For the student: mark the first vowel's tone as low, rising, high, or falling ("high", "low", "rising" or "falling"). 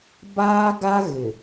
high